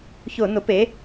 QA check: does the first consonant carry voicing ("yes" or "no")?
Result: no